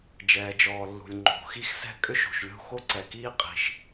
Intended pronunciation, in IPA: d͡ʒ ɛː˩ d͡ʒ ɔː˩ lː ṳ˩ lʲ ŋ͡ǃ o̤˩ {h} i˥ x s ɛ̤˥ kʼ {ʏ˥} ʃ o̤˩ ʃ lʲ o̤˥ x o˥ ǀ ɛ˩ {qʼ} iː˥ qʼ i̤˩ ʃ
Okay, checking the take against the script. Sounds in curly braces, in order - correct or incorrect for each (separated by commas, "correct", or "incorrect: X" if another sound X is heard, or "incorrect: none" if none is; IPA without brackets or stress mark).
incorrect: x, correct, incorrect: k